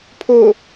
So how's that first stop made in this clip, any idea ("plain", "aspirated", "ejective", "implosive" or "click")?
aspirated